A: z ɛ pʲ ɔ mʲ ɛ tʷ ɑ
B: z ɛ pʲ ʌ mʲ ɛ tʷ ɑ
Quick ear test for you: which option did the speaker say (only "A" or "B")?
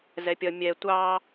B